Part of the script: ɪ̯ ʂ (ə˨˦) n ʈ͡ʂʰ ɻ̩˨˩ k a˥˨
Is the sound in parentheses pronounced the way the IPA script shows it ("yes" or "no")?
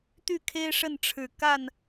no